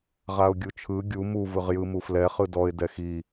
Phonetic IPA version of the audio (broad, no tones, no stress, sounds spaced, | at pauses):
ʁ a ʊ̯ ɡʲ u t͡ʃʰ ɯ ɡʲ u m u v ɯ ʁ j ɯ m u f l ɛ χ ɯ d ɔ ɪ̯ d ɛ x i